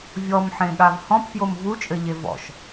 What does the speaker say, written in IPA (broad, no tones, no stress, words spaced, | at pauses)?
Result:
vʲɔmħẽɠav hɔ̃pfjom vut͡ʃʼɘʎe vɔ̰ʃ